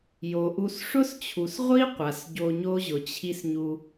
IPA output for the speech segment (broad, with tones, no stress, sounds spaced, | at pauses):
j o˨ ʔ u˧ s ʂ ʊ˦ s t͡ɕʰ u˨ s ʁʷ i˦ qʷ a˨ s ɟ o˧ ɲ o˦ ʑ ʊ˨ t͡ɕʰ i˦ s ɲ u˧